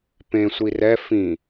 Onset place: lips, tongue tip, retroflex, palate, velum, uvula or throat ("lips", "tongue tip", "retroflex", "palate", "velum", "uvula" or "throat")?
lips